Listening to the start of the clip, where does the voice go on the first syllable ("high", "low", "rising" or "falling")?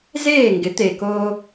falling